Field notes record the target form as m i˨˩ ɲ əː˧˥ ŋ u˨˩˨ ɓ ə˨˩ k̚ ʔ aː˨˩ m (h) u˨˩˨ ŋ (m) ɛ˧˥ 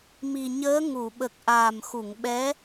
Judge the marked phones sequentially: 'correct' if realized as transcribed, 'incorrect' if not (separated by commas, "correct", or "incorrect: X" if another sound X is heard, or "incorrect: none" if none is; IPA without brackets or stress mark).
incorrect: x, incorrect: ɓ